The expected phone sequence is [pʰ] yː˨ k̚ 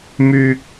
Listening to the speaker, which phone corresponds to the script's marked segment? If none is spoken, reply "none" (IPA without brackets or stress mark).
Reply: m